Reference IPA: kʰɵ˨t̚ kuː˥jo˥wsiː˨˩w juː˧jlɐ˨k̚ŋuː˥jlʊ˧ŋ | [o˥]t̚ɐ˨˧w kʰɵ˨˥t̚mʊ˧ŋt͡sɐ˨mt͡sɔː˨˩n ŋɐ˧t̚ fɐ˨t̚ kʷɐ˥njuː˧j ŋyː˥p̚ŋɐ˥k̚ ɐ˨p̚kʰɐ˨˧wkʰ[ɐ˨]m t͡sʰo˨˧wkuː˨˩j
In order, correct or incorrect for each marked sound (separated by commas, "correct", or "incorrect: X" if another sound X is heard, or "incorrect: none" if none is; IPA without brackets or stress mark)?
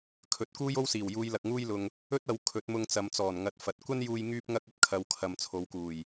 incorrect: ɵ˥, correct